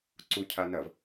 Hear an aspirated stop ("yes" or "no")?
yes